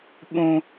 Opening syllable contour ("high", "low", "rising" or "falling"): high